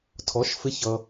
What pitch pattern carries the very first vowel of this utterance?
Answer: rising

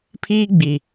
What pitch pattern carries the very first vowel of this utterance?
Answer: high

